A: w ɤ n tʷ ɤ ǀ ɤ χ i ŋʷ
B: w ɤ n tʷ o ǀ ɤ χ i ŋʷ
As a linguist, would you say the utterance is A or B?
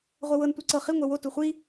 A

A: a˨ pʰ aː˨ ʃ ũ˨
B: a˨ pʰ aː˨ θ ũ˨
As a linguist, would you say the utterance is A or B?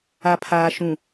A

